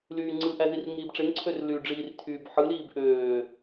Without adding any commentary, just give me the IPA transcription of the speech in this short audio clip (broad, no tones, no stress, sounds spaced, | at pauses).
l yː ŋ͡ǀ ɯ ʔ æ z i r ŋ iː b ʈ͡ʂ e ŋ ǀʰ ø r l y ɖ͡ʐ iː r tʰ yː b ħ ɯ l iː b ʔ øː